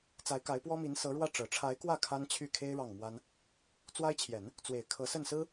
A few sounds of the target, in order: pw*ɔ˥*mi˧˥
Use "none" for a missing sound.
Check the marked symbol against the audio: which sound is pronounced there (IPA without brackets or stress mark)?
ɔ˥